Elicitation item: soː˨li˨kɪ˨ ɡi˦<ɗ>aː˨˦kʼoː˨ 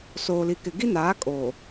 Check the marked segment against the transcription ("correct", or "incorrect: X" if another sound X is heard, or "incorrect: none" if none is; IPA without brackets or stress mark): incorrect: n